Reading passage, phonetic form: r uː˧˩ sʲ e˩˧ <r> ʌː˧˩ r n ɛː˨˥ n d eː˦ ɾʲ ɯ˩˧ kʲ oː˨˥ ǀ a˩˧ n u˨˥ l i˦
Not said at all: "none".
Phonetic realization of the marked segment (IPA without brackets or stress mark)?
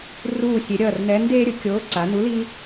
ɾʲ